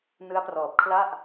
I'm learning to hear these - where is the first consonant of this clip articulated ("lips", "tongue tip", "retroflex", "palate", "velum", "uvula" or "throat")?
tongue tip